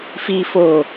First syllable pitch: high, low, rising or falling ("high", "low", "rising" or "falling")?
high